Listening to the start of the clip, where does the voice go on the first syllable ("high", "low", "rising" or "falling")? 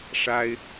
high